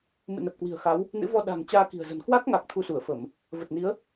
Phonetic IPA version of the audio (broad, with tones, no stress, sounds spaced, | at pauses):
m ɨ̰˧˨ n ə˨˩ p̚ k w i̤˨˩ ə̯ x a˨˦ w | n ɨ̰˧˥ v ɔ˧ ɗ a̤˨˩ ŋ t͡ɕ aː˧ k i̤˨˩ ə̯ z ə̤˨˩ n k w a˦˥ k̚ ŋ a˨˩ k̚ t̪ʰ u˧ s u˧˩ ə̯ f ə˧˩˨ m | v ə˨˩ t̚ n i˨˦ ə̯